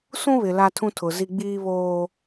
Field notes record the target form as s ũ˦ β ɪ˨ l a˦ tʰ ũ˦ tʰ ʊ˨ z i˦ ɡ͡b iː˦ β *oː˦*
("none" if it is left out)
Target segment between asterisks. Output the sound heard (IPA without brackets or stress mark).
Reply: oː˦